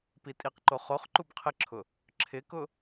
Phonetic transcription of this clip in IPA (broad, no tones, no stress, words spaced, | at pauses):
pitʼiqǃo χoχ ǃubqʰɪǁʰʊ | ǁʰɪkʊ